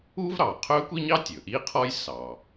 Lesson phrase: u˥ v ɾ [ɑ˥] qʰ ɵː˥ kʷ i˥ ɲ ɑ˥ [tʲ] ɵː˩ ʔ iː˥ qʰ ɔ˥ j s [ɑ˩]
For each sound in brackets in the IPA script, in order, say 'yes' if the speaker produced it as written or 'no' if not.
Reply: no, yes, yes

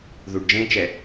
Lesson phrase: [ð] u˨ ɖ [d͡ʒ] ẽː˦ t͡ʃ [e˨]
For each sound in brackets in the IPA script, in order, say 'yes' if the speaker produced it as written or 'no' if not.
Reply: yes, yes, no

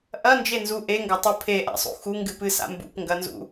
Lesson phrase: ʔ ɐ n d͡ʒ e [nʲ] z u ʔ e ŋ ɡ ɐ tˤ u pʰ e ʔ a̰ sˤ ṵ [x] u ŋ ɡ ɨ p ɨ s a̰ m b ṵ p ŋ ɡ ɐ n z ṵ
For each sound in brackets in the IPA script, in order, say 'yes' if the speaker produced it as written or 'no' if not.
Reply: no, yes

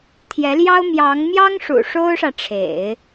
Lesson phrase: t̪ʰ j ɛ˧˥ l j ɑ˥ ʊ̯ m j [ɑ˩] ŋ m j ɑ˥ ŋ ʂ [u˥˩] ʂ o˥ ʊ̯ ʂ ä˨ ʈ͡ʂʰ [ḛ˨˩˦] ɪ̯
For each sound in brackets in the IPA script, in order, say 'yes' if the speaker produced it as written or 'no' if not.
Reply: no, no, yes

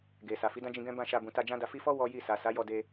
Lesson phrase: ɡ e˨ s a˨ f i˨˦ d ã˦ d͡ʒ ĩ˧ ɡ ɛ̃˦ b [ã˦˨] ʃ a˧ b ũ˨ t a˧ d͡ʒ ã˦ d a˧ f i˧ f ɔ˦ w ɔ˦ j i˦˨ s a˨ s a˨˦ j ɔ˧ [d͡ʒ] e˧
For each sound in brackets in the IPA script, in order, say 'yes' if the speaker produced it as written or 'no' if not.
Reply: yes, no

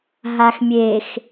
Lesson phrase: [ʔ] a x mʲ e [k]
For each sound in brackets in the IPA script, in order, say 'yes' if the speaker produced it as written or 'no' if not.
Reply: no, no

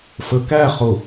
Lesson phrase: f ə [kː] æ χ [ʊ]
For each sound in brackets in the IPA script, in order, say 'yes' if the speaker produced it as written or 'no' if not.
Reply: no, yes

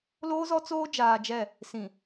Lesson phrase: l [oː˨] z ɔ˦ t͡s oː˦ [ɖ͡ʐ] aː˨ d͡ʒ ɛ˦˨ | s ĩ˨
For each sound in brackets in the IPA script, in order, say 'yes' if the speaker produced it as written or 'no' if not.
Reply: no, no

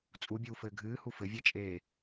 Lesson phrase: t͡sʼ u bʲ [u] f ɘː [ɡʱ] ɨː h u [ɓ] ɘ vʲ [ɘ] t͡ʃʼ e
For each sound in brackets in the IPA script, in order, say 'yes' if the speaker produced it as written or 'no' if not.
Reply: no, yes, no, no

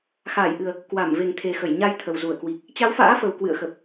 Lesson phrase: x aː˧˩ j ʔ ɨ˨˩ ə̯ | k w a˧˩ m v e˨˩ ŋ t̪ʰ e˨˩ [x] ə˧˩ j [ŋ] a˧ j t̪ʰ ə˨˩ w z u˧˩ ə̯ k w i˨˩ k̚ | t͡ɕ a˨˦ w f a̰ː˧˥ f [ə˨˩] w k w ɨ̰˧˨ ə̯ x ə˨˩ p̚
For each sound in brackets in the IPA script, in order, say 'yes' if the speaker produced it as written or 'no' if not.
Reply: yes, no, yes

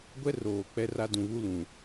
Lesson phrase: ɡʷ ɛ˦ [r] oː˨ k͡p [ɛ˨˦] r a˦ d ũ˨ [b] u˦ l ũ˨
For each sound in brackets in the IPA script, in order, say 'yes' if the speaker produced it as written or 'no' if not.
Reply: yes, no, no

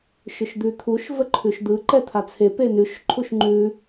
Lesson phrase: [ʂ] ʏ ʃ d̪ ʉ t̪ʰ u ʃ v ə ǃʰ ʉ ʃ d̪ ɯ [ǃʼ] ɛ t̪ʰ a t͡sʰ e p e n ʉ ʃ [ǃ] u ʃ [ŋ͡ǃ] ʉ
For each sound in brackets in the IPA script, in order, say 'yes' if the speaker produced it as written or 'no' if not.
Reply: no, no, no, yes

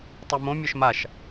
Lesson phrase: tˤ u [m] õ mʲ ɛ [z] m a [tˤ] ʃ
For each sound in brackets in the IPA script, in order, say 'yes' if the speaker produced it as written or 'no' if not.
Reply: yes, no, no

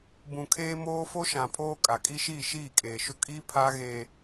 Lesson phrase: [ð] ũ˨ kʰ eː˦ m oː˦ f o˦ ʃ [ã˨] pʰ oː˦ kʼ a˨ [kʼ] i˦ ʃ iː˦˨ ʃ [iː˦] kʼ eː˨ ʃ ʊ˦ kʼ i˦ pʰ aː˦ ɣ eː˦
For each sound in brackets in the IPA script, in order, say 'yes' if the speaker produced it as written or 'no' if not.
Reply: no, yes, yes, no

